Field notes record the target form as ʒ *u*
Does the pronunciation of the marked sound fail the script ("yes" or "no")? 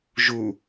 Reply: no